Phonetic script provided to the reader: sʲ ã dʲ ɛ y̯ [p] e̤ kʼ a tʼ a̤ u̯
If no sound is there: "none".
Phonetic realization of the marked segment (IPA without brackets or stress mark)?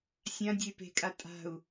p